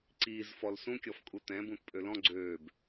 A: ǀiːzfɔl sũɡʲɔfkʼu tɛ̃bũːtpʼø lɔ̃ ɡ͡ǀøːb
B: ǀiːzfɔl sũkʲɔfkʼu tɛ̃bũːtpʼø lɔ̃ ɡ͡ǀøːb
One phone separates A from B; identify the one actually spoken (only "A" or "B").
B